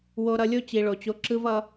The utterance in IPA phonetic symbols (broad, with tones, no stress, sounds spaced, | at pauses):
w o˨ ɾ ʌ˨ lʲ o˦ t͡ɕ i˨ ɭ o˨ t͡ɕ o˦ ǁ ɯ˦ v ʌ˦